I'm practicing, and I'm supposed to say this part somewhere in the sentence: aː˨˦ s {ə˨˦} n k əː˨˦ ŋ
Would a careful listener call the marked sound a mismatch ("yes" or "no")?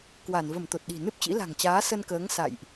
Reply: yes